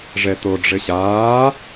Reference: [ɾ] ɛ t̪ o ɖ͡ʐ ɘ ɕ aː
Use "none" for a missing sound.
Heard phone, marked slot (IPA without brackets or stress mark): ʐ